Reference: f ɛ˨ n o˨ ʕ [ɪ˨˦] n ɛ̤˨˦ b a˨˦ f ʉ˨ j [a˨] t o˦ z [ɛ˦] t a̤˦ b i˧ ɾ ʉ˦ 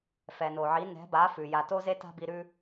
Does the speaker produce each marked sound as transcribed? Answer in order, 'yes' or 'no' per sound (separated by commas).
no, yes, no